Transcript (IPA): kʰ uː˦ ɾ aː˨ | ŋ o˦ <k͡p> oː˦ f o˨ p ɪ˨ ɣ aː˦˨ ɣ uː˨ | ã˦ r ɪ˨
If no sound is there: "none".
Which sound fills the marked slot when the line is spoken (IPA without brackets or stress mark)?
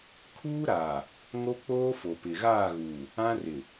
k͡p